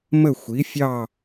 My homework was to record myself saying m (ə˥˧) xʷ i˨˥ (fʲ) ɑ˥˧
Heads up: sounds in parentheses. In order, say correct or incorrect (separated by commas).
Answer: correct, correct